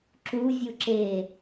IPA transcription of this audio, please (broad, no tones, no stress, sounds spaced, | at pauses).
ǁ u vʲ u ǁ e